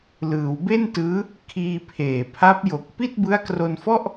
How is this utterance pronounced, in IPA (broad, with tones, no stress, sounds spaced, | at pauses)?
l ɯː˩˦ w b e˥˩ n t ɯː˦˥ | kʰ iː˧ pʰ eː˨˩ pʰ a˦˥ p̚ j o˨˩ k̚ p i˥˩ t̚ b ɯ˦˥ a̯ k r o˧ n f ɔ˥˩ ʔ